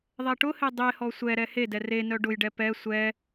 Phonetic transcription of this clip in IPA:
ðˤ ɛ ʈ ʊ h e dˤ e h ɔ sʷ ɛ ɾ ɛ h e d ɛ r e n œ ɖ ʊ j ɖ ɛ p ɛ sʷ ɛ

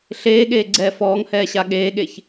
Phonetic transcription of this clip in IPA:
ɬ eː ɠ eː ɡ͡ǀ ɛː f ɔː ŋ h ɛː ɕ a ɠ eː ɠ e ç

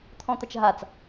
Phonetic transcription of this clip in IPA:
t̪ʰ ɔ̃ t̪ ɐ t͡ʃ ɦ a t͡s

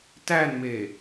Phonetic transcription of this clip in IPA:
t æ n m e

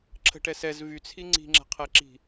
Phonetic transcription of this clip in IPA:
ǁʰ ə̤ ʈ ɛ s ɛ z v y t͡sʰ i ŋ͡ǀ i̤ ŋ͡ǁ ɛ̤ qʰ ɛ ǁ i̤

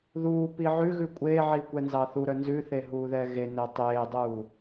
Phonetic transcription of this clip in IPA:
ð uː p i ʕ ʉ ɣ ʉ kʷʼ eː ʕ iː kʷ ɛ n z ɑ θ u ɾ œ n z ʉ θ e ɦ uː ð ɛː ɣ e n ɛ tˤ eː dˤ uː

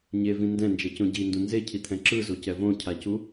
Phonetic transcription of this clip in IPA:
ɲ e v ĩ n d ɛ̃ n d͡ʒ ɛ c õ ɟ i n d ũ n z e cʰ i t̪ʰ ɛ̃ ǁ ɯ z o c ɛ v õ cʰ a c u

